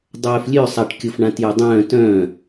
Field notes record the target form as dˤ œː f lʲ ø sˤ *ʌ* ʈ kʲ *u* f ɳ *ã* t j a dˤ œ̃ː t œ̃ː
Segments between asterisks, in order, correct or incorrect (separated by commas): incorrect, incorrect, correct